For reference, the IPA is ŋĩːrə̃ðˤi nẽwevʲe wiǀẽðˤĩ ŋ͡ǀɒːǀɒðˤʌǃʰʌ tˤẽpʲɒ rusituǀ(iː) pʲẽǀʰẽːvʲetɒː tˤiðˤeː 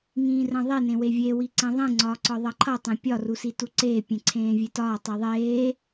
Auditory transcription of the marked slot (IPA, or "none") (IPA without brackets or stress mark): eː